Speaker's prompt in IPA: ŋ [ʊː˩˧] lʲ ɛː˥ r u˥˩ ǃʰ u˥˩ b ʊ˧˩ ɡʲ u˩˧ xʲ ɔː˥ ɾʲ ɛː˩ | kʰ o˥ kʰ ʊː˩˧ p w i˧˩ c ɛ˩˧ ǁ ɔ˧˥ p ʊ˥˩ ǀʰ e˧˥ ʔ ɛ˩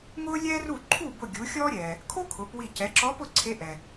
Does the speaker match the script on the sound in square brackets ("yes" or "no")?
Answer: no